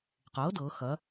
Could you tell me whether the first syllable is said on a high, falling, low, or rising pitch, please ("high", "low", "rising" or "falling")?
rising